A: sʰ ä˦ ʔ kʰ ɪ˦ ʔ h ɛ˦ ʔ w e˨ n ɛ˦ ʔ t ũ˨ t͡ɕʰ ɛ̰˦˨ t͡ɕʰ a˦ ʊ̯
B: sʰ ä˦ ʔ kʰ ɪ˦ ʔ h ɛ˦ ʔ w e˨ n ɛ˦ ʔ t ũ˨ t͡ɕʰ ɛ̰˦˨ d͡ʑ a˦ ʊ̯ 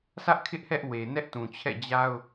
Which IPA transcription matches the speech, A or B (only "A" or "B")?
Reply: B